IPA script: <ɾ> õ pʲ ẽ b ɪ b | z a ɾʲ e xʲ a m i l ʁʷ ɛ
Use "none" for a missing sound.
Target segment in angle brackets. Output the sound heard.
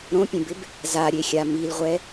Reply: ɾ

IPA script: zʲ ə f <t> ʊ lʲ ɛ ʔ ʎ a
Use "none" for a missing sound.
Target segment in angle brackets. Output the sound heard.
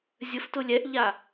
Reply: t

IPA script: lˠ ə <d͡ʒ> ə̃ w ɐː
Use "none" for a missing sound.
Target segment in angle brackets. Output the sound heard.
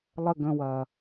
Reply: ɡ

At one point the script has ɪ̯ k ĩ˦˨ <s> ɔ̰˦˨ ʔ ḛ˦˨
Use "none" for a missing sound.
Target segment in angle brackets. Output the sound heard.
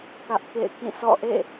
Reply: s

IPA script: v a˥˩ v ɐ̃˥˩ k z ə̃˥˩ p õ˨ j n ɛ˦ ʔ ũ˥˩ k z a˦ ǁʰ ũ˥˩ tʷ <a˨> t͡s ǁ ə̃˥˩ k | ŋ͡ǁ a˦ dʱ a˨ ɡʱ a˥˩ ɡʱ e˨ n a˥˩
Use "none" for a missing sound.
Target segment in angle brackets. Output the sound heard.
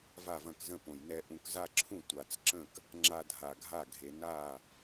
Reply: a˨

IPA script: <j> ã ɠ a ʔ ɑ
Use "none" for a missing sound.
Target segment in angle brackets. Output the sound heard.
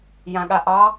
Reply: j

